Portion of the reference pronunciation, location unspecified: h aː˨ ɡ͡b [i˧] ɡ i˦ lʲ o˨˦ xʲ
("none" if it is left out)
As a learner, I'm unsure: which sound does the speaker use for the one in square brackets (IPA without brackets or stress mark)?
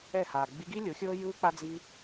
i˧